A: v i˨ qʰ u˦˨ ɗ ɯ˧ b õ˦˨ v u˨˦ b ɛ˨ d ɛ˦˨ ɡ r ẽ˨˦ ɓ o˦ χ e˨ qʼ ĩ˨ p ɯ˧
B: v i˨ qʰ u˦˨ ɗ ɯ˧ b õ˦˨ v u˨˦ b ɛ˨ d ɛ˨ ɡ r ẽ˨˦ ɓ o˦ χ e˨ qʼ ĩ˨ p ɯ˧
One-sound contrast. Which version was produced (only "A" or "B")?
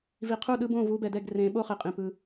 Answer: A